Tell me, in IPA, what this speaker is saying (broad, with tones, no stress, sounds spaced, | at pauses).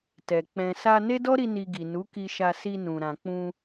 t ɛ˨ k͡p ɛ̃˨ s a˧ n e˦ d ɔ˦ ɾ i˧ n i˧ ɡ i˨ n u˨˦ k i˧ ʃ a˧ s i˧ n ũ˨ ɾ ã˨ k͡p ũ˧